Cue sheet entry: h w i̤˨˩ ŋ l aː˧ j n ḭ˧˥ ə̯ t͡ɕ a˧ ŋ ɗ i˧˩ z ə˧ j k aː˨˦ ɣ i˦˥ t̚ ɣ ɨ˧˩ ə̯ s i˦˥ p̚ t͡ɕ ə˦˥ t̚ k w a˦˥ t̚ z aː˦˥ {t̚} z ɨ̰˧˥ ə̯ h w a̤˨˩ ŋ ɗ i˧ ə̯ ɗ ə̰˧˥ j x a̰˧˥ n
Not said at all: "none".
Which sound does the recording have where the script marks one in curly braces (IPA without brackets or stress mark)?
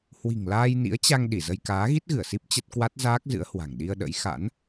k̚